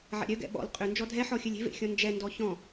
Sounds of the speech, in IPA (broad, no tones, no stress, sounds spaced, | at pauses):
ʕ ɛ̰ ɾʲ œ ɡ ɛ̰ ɓ ɔ̰ l qʼ ʏ n d͡ʒ ɔ dʱ ɛ ħ ɔ xʲ œ lʲ e̤ v ḛ xʲ ɔ̃ n d͡ʒ ɛ n d ɔ ç ɔ̃